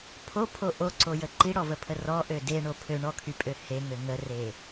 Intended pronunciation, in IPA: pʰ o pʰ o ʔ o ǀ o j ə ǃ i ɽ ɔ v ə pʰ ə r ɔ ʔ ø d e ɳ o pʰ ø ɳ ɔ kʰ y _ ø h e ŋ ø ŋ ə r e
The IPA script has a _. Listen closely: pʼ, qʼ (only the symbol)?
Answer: pʼ